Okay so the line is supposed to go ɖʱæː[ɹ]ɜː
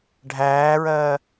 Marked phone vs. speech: correct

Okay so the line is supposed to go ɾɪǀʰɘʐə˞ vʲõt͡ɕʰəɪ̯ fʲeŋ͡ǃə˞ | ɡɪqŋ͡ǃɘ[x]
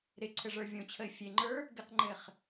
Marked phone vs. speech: incorrect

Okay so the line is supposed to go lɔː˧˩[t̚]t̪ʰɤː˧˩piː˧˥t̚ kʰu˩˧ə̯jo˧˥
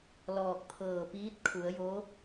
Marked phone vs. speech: incorrect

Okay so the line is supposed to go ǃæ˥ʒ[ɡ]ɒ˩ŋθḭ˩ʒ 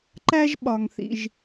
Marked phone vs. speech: incorrect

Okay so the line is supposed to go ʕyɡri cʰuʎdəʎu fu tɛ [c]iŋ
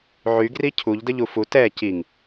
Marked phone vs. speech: correct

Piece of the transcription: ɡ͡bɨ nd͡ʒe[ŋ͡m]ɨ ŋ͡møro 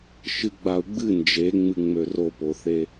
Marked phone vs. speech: correct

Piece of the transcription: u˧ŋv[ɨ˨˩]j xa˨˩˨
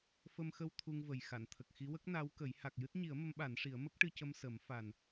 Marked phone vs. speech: incorrect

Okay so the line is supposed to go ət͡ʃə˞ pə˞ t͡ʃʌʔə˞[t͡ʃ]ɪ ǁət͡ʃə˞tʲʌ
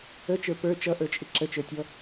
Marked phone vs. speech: incorrect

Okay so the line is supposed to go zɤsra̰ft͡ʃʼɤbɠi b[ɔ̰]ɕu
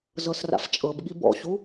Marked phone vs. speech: correct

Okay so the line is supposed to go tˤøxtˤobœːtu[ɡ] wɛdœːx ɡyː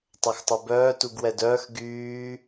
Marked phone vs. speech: correct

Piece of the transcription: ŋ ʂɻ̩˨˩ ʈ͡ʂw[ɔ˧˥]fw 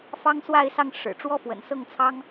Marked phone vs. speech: incorrect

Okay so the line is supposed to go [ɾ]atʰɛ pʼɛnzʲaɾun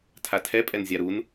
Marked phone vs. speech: incorrect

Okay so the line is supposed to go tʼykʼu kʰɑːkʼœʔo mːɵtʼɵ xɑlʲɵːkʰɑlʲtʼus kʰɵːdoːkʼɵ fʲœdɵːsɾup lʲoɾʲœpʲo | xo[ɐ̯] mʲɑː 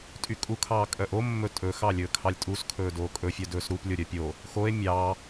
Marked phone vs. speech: incorrect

